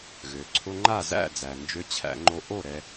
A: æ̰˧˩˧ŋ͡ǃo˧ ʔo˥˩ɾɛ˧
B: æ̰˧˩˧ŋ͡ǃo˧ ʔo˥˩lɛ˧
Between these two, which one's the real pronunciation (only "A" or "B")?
A